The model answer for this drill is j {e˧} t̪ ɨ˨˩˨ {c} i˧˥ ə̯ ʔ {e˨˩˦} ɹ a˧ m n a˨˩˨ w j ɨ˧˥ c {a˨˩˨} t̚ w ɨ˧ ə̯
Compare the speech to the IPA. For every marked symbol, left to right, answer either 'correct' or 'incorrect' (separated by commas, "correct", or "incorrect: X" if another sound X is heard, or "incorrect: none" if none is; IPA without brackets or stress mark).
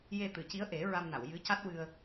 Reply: correct, correct, correct, incorrect: a˦˥